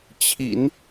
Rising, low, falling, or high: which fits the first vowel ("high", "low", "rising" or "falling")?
low